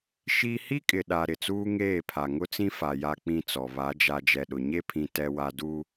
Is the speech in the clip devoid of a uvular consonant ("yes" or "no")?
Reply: yes